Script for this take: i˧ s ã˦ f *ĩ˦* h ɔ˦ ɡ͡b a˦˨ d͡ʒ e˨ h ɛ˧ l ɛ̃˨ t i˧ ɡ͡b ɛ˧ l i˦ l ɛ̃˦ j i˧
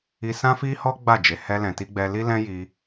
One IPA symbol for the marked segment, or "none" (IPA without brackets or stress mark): i˦